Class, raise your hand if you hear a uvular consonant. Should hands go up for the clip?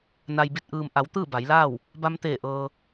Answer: no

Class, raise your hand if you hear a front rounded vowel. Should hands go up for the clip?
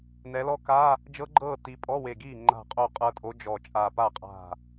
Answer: no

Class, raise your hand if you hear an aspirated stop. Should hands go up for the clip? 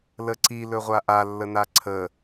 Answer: yes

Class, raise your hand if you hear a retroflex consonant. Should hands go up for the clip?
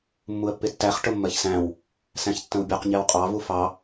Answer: yes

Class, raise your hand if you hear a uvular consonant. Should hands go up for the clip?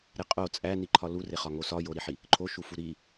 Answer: yes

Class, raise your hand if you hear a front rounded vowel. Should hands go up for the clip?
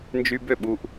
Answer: yes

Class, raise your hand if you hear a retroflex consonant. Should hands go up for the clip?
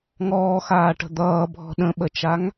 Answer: yes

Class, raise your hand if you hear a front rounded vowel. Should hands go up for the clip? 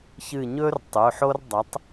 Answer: no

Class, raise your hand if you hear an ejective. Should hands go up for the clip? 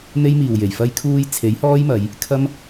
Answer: no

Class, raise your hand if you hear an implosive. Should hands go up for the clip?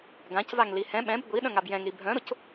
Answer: yes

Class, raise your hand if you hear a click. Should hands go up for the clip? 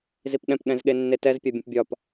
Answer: no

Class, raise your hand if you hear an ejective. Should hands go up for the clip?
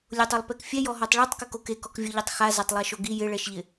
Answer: no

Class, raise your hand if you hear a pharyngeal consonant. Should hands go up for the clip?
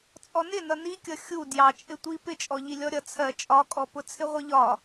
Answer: no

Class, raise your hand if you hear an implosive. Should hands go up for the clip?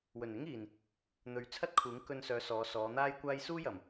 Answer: no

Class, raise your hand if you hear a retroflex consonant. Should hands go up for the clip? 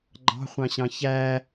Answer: no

